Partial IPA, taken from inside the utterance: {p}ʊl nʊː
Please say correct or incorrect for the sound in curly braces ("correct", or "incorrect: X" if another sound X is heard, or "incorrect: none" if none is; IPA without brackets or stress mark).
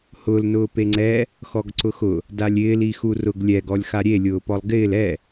incorrect: h